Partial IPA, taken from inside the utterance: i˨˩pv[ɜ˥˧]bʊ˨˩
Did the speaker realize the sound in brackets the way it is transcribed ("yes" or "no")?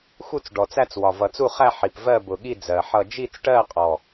yes